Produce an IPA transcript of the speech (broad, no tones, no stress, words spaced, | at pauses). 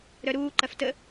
ɾœɾuː ǃɐftə